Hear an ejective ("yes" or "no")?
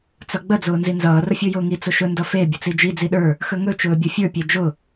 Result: no